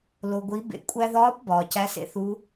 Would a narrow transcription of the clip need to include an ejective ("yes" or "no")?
yes